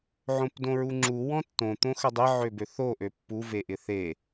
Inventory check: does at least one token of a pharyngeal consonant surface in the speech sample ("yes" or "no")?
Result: yes